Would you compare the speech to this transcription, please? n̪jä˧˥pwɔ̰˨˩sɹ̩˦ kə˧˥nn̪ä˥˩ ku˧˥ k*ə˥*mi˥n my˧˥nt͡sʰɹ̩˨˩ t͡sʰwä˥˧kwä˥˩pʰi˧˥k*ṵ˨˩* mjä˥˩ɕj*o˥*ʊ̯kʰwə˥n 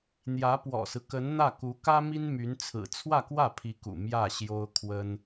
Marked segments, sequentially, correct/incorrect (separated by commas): incorrect, correct, correct